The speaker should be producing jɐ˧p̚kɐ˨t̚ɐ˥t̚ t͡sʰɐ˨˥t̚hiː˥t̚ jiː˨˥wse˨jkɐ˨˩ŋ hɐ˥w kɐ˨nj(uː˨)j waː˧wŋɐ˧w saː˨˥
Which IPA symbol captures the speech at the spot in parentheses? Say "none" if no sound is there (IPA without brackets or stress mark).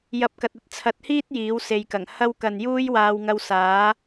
uː˥